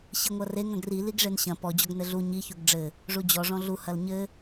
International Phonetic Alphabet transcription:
ɕ i ŋʷ ɐ r e ŋ ɐ̃ ɡ r i l i ɡ ʐ e n ɕ ɐ̃ p ɔ d͡ʑ ɔ ɡ n ɘ ɮ u ɲ i ç u ɡ ɖ͡ʐ ɘ | ʐ u d͡ʑ ɔ ʐ ɔ̃ ɮ u h ɐ l ɲ ɘ

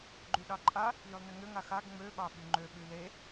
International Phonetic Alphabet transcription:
ɡ͡ǃ y ɗ ɑ ǃʼ a | j y lˠ n ə ŋ ø ŋ a x a ɡ ŋ͡m ø ɓ ɑ ɓ y ŋ͡ǃ ø ɓ y l e

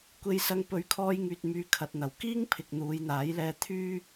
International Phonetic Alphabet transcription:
kʷ e˧ j s ɐ˧ ŋ p ɵ˨˧ ɥ kʰ ɔː˧ j ŋ yː˨ t̚ m yː˨ kʰ ɐ˨ t̚ n̪ ɐ˨˩ w k iː˥ ŋ pʰ ɪ˨ k̚ n̪ uː˨˧ j n̪ aː˨˥ j l ɛː˧ t̪ʰ yː˥

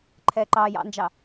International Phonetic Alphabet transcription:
ǃʰ ɛː ǃ ɑː j ɑ̰ n d͡ʒ ɑ

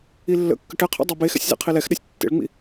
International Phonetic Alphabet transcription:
i lː ə̰ kː ə ʈ ɛ qʰ ɛ̰ dˤ e b e x ɛ̰ sʲ z ḛ qʰ i l ɛ x ɗ ɛ sʲ tː ḛ ɭ ŋ͡m ḭ

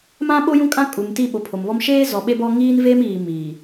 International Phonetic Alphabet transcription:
m ã˦ ɓ o˦ j ũ˦ kʼ ã˦ kʼ u˨ m t i˦˨ ɓ o˨ pʰ o˨ m β ɔ˦ m ʃ eː˦ z ɔ˨ ɓ e˦ b ɔ˦ ŋ iː˦ n v e˦ m iː˨ m iː˨

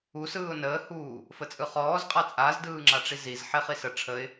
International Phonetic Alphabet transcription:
u s ɯː ʊ̯ n əː h uː | f ə t͡sʼ ɯ χ ɔː z qʼ a t͡sʼ a z d ɯː ŋ͡ǁ a ʈ͡ʂ i z i z ħ e χ i s ə ʈ͡ʂʰ ə ɪ̯

